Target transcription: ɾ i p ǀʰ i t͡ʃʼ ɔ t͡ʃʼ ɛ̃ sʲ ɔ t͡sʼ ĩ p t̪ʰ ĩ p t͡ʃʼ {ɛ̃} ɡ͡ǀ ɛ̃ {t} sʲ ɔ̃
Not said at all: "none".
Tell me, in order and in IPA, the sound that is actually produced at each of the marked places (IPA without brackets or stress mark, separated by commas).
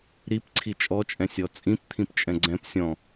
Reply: ɛ̃, p